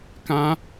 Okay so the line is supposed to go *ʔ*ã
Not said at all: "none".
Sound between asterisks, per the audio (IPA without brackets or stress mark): k